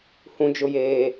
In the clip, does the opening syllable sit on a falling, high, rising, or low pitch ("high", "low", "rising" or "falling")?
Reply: low